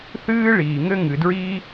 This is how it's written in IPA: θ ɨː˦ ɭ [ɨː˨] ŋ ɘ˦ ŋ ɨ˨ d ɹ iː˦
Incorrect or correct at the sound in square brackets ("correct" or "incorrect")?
incorrect